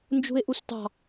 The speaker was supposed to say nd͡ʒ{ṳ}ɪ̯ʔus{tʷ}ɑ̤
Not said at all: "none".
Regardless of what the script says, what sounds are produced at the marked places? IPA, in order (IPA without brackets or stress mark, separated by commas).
ṳ, t